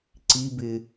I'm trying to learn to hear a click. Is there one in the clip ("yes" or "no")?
yes